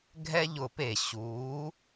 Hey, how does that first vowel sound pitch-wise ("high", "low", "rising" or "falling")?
high